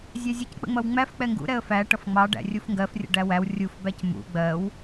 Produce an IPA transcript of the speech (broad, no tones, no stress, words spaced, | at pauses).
zʲæzʲʌck͡pə̰ŋ͡mʌw ŋ͡mæf k͡pɛŋɡṵɾɛə̯ fæ ʈʌfŋ͡mɑ ɖæ̰rʲufŋɡɜfrʲə̰ ɖæwæw rʲufbæc mṵ ɡ͡bɜw